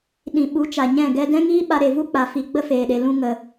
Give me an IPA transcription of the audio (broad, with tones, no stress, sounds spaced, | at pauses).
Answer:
ɗ ĩ˨ ɓ u˨˦ t͡ʃ a˨ ɲ ɛ̃˦˨ ɡ ɛ˦ d ɛ̃˦ ŋ iː˦ ɓ a˧ ɾ e˨ v u˦ k͡p a˨ f i˨ ɡ͡b ə˦ f eː˨ ɗ e˨ l ũ˧ ŋ ə˨